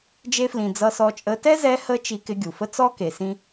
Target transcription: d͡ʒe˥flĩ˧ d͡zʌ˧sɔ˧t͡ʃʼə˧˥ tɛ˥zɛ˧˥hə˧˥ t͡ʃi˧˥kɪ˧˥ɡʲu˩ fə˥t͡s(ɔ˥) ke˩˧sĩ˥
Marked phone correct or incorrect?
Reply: correct